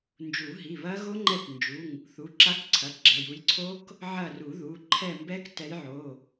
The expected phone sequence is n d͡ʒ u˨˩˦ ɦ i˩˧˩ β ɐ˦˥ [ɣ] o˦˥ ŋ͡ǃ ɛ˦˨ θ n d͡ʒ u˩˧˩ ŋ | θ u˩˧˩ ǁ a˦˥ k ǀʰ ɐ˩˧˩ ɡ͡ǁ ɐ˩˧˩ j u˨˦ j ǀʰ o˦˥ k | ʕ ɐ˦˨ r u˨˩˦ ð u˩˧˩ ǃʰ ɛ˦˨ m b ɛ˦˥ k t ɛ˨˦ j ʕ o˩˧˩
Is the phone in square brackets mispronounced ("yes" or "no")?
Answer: no